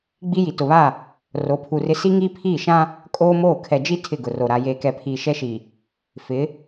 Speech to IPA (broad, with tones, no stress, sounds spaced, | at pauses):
ɡ͡b i˦ j i˨ t ʊ˨ β a˦˨ | r o˨˦ pʰ u˨ r ɪ˦ s i˦ ŋ iː˦ pʰ iː˦˨ ʃ ã˦ | kʼ oː˦ m oː˦˨ kʰ ɛ˨ d͡ʒ i˦ tʰ ɪ˦˨ ɡ ʊ˨ r o˨ ɾ a˨ j eː˨ k ɛ˨ pʰ iː˨ ʃ ɛ˦ ʃ i˨ | f ɪ˨˦